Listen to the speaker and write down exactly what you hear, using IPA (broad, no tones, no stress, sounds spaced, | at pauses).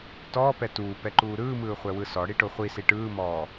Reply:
t ɔː p ɛ t uː p ɛ ǃ uː ɾ ɯː m ɯː χʷ ɛ w ɯ s ɔ ɽ i ʈ o χʷ i s i ʈ ɯː m ɔː